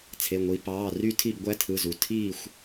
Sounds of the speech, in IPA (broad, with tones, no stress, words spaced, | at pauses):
t͡sʰe˩˧˩ŋʷi˩˧ pɑː˩˧˩ry˥˨tʰi˥˨b ɡʷæ˦tʰɯ˩˧˩zu˩˧ tʰiː˥˨xʷ